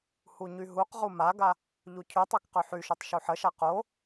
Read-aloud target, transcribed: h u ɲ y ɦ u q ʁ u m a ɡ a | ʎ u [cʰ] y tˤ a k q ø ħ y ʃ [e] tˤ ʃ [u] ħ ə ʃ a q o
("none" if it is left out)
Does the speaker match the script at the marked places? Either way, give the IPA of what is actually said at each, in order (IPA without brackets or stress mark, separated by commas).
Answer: cʰ, ø, u